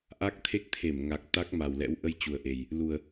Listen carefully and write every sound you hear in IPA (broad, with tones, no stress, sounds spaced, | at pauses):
ʔ a˦˥ k̚ t̪ʰ e˦˥ k̚ t̪ʰ e˧˩ m ŋ a˨˩ k̚ t̪ a˦˥ k̚ m a˨˩ w l ɛ̰˧˥ w ʔ ə˧ j t͡ɕ u˨˩ ə̯ ʔ e˨˩ j | l u˨˩ ə̯